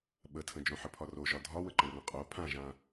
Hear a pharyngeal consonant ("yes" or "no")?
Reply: yes